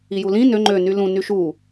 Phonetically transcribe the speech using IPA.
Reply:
i j u l ĩ n ø ŋ͡ǃ ø n y l ũ n y ʃ u

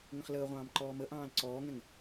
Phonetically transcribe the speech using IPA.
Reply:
ŋ ə̃ χ l əː ʁʷ ɑ̃ː m ǃ ɔː m ə ʔ ɑ̃ː l ǀ ɔː ŋ ɛ̃ ŋ

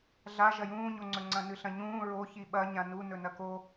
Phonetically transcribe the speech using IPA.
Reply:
ɮ a ʒ ɐ j ũː ɲ o ŋ͡ǀ ɵ ŋ͡ǀ ɐ̃ n ɨ ɬ ɐ̃ ɲ ũː ɹ o ç i ɓ ɐ ɲ ã n u n ɵ n ɐ k o

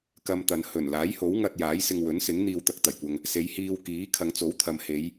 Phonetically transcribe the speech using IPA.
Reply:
k ɐ˧ m t̪ ɐ˨ n h ɵ˨˩ n l aː˨˥ j h o˨˥ w ŋ ɐ˧ t̚ j aː˨˥ j s ɪ˧ ŋ w ɵ˨˥ n s ɪ˨˥ ŋ n̪ iː˧ w t̪ ɐ˧ k̚ t̪ ɐ˨˩ j kʷ ɐ˧ ŋ | s e˨˧ j h iː˧ w k iː˨˥ kʰ ɐ˨˧ ŋ t͡s o˨˥ w t̪ʰ ɐ˨ m h e˨˧ j

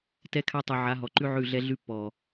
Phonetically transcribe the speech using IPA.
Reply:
t ɛ˦ kʰ a˦ tˤ ʉ˨ ʕ a˨˦ ɦ ɔ˨ ǃ ʉ˦ ʕ ʉ˦˨ ɮ ɛ˦ ɮ ʉ˦ pː ɔ˨

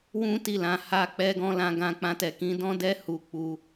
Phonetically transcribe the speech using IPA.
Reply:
w ũ˦ t i˦˨ l ã˨˦ h a˦ k͡p ɛ˦ ɡ ɔ̃˦ l ã˦ ɡ ã˦ k͡p ã˦ t ɛ˧ k ĩ˦ d ɔ̃˦ d ɛ˦ h u˧ k͡p u˧

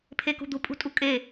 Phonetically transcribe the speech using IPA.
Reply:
pʰ e k ṳ d̪ u pʼ ṳ tʼ u kʼ e

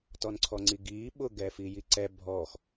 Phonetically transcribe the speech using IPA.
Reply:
t ɔ n ǀʰ ɔ ŋ͡ǀ i ɡ iː ɓ ʊ ɡ ɛː f i j i ǀ ɛ bʱ ɔ x

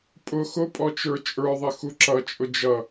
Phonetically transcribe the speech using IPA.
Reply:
pʼ ʊ x ʊ pʼ ɔ t͡ʃ ə˞ t͡ʃʼ ə˞ ðˤ ɪ x u ǁ ʌ t͡ʃʼ ʊ d͡ʒ ʌ

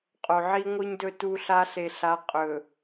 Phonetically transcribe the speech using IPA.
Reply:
qʼ o˨ ʕ i˦ ŋʷ ɨ˦ ɲ d ɵ˦ t u˦ ɬ a˦ ɬ e˨ ɬ a˨˦ qʼ ɵ˨

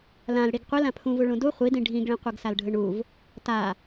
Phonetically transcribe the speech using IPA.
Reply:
l ã l ɽ i ɡ qʷ i l ã pʰ ũ v u ɭ ũ d u χʷ i d ĩ ɖʱ ĩ ɡ ɭ ĩ qʷ ɯ ɡ s a l ɖʱ ɯ ɳ u v | t a

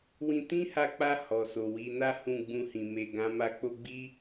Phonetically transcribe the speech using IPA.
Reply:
w ĩ˧ t ĩ˦ h a˧ k͡p a˧ h ɔ˨ s o˨ w i˧ n a˦ h ũ˦˨ ɡ͡b ũ˧ h ĩ˨ m e˨ ɡ ã˨˦ m a˧ k͡p o˧ ɡ͡b i˦

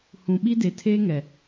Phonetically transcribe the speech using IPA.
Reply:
h ũ˨ ɓ i˦ d e˨ tʰ eː˦ ŋ ɛ˨

